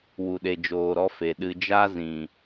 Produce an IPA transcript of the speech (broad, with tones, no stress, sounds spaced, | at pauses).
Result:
w u˨ ɗ e˨ d͡ʒ oː˨ ɾ ɔ˧ f e˨ ɗ ɨ˧ d͡ʒ a˦ z ĩ˨